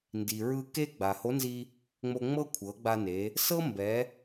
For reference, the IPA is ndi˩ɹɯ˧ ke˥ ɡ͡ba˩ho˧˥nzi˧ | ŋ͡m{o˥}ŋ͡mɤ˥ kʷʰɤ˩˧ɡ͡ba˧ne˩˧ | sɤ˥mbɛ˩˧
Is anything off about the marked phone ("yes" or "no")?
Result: yes